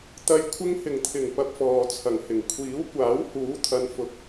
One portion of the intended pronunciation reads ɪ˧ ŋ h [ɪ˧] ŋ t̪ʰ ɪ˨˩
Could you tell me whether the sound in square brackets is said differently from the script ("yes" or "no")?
yes